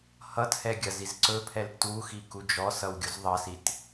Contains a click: yes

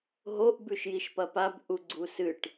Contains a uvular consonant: no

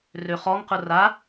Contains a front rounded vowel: yes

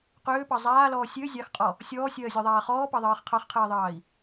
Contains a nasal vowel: no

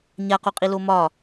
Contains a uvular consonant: yes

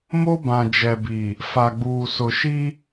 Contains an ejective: no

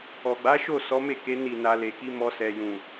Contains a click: no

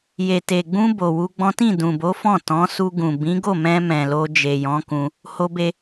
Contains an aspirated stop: no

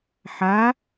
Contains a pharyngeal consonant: yes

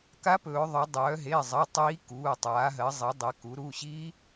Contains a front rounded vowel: yes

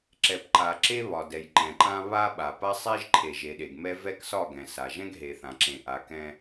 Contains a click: yes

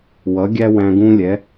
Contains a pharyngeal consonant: no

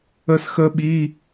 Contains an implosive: yes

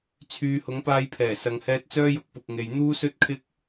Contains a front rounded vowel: yes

